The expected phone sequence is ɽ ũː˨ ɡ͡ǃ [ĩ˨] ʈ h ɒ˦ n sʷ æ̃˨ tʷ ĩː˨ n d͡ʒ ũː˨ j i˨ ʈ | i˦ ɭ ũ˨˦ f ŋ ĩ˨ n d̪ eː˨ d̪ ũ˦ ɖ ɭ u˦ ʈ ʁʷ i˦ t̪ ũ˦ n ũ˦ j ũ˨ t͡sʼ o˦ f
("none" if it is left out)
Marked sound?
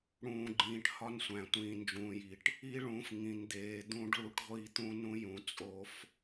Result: ĩː˨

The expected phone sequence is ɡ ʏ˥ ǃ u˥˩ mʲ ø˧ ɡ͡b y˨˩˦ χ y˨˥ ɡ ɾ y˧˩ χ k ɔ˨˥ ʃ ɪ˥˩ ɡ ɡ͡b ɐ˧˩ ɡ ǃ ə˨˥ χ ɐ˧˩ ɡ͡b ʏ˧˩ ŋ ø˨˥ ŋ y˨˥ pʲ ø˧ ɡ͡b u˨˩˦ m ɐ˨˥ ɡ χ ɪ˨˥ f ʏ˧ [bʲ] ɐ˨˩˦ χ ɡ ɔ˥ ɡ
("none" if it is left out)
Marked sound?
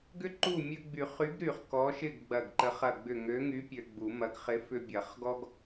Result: bʲ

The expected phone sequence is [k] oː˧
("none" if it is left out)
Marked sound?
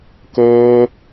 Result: k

